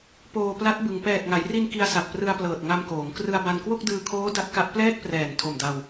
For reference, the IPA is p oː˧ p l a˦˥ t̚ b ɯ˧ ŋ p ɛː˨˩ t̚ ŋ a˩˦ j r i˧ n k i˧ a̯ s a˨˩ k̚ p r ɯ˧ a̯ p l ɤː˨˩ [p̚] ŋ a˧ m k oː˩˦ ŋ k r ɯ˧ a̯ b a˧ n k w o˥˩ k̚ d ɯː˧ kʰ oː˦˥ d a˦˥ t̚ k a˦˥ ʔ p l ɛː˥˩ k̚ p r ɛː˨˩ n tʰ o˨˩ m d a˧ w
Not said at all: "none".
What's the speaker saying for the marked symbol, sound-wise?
t̚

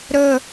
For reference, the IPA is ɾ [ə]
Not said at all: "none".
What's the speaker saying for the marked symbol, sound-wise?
ə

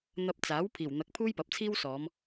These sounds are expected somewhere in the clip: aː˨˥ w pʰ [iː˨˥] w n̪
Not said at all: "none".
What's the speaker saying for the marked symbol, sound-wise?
iː˨˩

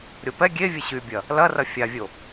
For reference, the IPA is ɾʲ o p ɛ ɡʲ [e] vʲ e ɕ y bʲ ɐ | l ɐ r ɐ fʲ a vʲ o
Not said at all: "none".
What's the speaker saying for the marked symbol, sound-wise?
e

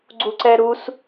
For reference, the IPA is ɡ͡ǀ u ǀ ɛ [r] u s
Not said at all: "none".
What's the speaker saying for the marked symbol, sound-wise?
ɾ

